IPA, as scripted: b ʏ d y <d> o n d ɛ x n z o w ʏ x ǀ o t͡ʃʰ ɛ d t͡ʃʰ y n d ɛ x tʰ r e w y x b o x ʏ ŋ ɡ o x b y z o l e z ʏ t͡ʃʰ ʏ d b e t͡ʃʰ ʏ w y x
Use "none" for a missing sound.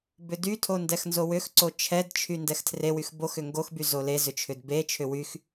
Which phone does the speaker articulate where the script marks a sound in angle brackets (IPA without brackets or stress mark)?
tʰ